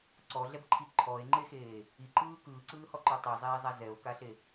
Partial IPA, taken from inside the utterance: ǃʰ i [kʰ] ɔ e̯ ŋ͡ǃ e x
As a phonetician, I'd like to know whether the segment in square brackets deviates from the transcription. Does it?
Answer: yes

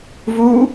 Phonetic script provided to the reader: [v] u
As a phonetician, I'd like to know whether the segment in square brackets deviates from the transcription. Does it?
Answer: no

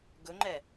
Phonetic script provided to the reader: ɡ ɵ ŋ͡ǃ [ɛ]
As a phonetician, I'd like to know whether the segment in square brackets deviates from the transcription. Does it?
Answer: no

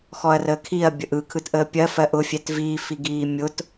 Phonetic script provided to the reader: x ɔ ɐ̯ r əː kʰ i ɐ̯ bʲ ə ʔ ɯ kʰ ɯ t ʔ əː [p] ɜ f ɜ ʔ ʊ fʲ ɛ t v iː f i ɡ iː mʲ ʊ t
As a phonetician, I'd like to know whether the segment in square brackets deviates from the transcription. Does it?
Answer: yes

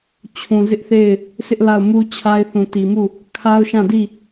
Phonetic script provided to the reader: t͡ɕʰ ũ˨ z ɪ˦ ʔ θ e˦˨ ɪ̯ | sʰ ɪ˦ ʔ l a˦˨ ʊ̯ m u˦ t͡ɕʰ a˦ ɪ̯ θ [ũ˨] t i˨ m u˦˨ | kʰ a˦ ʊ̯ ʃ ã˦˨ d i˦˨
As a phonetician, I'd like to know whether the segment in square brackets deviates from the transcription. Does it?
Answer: no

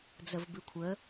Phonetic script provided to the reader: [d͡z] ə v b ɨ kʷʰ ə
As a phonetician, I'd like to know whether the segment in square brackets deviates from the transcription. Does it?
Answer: no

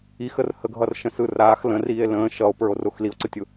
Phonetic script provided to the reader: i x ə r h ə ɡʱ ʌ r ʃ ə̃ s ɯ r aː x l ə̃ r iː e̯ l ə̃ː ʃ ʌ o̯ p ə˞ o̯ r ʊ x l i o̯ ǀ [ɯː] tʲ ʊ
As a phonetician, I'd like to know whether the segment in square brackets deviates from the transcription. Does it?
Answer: yes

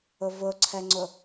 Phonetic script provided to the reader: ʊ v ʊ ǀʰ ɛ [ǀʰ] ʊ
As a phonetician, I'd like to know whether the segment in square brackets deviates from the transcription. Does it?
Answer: yes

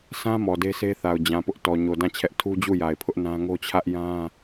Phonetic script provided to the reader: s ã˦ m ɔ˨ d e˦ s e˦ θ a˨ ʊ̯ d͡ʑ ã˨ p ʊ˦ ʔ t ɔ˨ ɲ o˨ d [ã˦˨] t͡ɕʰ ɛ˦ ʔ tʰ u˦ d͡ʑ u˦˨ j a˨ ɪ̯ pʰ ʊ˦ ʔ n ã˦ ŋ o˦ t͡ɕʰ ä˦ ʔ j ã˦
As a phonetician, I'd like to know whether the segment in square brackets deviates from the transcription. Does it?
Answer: no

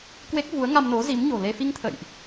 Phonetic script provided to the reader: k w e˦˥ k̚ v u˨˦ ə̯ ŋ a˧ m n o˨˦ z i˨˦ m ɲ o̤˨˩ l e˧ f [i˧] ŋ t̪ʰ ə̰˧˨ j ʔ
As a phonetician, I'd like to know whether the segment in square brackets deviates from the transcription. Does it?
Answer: no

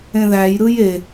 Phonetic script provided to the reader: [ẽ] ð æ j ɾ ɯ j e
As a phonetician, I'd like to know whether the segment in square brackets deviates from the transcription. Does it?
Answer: no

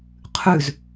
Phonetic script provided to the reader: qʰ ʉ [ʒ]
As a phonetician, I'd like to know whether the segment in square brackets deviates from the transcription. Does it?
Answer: yes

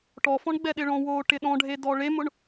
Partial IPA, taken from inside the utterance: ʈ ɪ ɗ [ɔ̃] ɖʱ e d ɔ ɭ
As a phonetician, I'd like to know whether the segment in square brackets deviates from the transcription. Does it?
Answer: no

